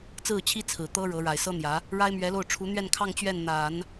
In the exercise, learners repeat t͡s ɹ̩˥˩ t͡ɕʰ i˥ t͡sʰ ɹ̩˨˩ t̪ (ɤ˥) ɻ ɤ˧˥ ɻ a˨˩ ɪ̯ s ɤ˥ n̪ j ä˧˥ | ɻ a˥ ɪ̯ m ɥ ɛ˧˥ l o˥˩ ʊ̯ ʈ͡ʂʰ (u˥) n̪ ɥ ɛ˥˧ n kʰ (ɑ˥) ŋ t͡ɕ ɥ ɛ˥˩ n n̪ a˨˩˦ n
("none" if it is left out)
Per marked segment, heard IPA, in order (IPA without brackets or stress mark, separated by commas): ɤ˥, u˧˥, ɑ˥˧